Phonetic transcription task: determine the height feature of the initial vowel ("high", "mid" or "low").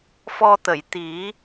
mid